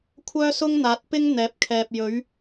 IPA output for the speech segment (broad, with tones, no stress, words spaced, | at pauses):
kʷʰœː˥sʊ˥ŋn̪aː˨˥t̚pɪ˥ŋ n̪ɛː˨˥p̚kʰɛː˨p̚jɵ˨˥ɥ